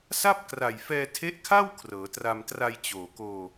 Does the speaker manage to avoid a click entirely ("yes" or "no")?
yes